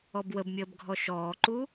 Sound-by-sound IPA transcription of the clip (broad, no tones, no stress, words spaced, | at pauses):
ɔbwəbmʲəːb ɡʱɔʃɔːǃu